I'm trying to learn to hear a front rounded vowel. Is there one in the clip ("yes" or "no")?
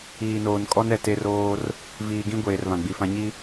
no